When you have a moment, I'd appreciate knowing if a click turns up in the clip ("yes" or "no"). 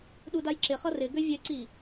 yes